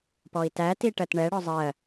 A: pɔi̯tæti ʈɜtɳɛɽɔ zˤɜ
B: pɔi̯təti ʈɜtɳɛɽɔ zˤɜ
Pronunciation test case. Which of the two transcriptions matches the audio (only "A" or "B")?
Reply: A